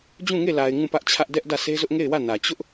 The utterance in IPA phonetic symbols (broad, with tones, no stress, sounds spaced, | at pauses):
d͡ʑ ũ˦˨ ŋ e˦˨ l a˨ ɪ̯ ŋ ũ˦˨ p ä˦ ʔ t͡ɕʰ ä˦ ʔ d ɛ˦ ʔ d ä˦˨ sʰ e˦ z ʊ˦ ʔ ŋ e˦˨ ɪ̯ w ä˦˨ n ä˨ t͡ɕ ʊ˦ ʔ